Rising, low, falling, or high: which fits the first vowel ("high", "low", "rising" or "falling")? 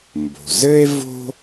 low